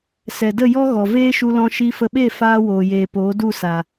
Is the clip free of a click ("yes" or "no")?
yes